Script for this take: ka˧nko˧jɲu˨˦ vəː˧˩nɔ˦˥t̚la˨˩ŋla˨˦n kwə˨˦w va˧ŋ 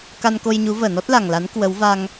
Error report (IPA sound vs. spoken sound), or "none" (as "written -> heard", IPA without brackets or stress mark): none